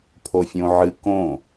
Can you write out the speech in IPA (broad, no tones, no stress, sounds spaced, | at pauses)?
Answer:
pʰ o fʲ õ ʕ ɨ k õ